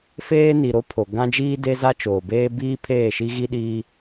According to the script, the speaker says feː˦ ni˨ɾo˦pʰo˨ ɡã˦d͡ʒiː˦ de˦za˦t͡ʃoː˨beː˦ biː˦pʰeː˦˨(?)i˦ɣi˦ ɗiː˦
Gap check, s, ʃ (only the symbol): ʃ